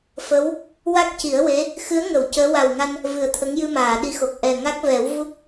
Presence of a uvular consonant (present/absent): absent